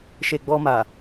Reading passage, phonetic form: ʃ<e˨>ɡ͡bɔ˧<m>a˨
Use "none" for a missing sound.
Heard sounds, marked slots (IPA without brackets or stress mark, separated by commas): e˨, m